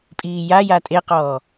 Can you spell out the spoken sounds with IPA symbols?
pʼ iː j a j a tʼ e q ɔː

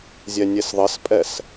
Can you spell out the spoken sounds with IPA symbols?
zʲ ɛ nʲ e s ðˤ ɘ s pʼ ɛ s

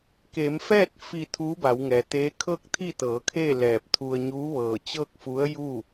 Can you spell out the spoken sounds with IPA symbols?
k eː˩˧ m f ɛː˥˨ t̚ f i˧˩ t̪ʰ uː˧˥ b a˩˧ w ŋ ɛː˩ t̪ eː˧˥ kʰ ɤː˥˨ k̚ t̪ʰ i˥˨ t̪ ɤː˩˧ kʰ e˥˨ l ɛː˧˩ p̚ t̪ʰ u˧ ə̯ ɲ uː˧˥ ʋ ɤː˧˩ t͡ɕ ɤː˥˨ k̚ f u˧˥ ə̯ j uː˥˨

